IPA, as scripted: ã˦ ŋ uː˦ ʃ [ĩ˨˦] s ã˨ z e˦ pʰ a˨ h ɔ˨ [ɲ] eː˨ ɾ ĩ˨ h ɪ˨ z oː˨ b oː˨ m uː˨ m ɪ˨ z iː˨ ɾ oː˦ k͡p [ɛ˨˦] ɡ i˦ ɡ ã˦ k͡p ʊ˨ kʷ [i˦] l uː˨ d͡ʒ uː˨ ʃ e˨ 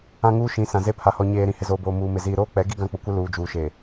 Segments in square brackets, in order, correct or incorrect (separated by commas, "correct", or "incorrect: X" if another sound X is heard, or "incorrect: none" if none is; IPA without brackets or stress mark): correct, correct, correct, incorrect: ɪ˦